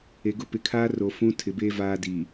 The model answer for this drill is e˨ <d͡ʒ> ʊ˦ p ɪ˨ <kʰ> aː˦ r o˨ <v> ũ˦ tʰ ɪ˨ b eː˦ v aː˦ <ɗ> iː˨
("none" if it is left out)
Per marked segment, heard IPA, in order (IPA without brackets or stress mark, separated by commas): ɡ, kʰ, f, d